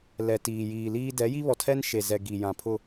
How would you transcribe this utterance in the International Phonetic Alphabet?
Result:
l ɛ˨ t iː˨ j iː˨ l iː˦ d ɛ˨˦ j i˦ β ɔ˨ tʰ ɛ˦ n ʃ e˨ z ɛ˨ ɡ i˨ j ã˨ pʰ ʊ˦

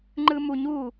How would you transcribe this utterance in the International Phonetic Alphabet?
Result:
ŋ͡ǃ ɯ m u ɲ u

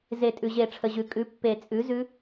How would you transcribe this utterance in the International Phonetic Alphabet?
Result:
z e˨˩˦ tʼ ʉ˩ ʑ e˨˩˦ ʈ͡ʂʰ ə˩ ʑ ʉ˩ kʼ ʉ˩˥ pː e˨˩˦ t͡sʼ ʉ˩˥ z ʉ˦˥

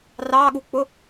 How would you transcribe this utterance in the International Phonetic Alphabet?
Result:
r ɑ ɠ u k͡p ʊ

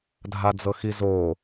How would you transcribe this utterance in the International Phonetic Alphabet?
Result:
dʱ a d͡z ɤ x i z o

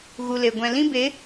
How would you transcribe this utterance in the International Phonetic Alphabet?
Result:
ɣ u˨ l e˨ ɡʷ ɛ̃˨ l ĩ˦ b e˨˦

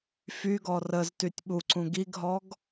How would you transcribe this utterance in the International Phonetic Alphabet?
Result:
f y ɡ ɔ r ə z t y tʲ ɓ u ǀ ũ ɡ i ɡ ɦ ɔ ɡ

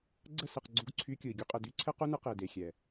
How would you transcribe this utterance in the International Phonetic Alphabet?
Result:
ɡ͡ǀ ə˦˨ s ɘ˨ q ɡ͡ǀ u˧ ɡ ǀʰ y˧ kʲ ɯ˨ i̯ ɡʲ u˧ qʼ ə˨ d y˦ ǀʰ ɘ˦ q u˦ n ɯ˧ q e˨ d e˨ xʲ ɛ˨

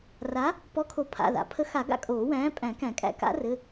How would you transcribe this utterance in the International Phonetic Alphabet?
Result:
r a˨˥ | p ɔ˨˥ kʰ o˨˩˦ pʰ a̰˩˧˩ ð a̰˨˩˦ pʰ ə˨˥ x a˨˩˦ ɡ a̰˨˥ kʼ oː˨˩˦ w æ̃ː˨˥ pʼ æ̃˨˩˦ k æ̃˨˩˦ kʼ æ̰˨˥ k a̰˨˥ r ɘ˩˧˩

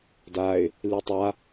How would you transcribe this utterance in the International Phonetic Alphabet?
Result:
d a ɪ̯ | l i tˤ a

